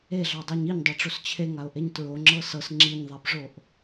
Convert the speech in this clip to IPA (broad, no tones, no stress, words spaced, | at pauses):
eɮɑdˤaɲ iɲdˤɑʈ͡ʂos t͡ɕʰeŋaʊ̯ʔeɲ tɹoŋ͡ǁɤ sɤs ŋ͡ǁiɲðˤabʐoʔ